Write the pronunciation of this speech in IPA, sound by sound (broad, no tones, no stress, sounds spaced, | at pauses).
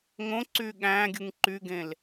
ŋ õ ǀ yː ɠ æ̃ː ɡʲ ɯ ŋ ǃ y ɡ ẽ l